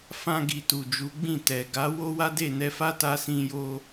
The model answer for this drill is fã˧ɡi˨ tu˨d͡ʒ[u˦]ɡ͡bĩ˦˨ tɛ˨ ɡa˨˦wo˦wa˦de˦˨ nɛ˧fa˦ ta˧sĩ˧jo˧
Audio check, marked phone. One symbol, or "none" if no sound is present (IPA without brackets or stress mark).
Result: u˨˦